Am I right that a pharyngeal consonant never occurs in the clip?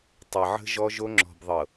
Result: no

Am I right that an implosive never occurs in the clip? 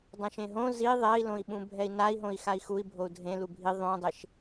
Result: no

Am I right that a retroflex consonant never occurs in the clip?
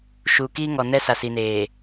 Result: yes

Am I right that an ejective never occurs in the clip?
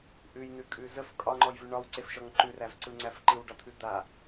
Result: no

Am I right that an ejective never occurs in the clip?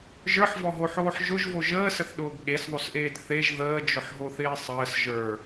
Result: yes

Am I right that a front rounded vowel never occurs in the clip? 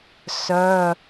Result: no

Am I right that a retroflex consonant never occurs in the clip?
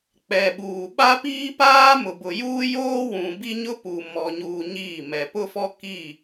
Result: yes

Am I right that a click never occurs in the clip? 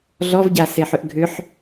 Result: yes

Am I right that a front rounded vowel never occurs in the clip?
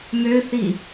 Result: no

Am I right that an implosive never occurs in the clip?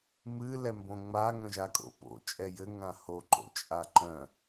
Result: yes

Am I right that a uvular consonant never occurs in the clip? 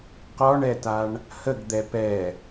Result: no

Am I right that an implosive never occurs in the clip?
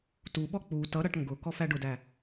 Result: no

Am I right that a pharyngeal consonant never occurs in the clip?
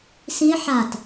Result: no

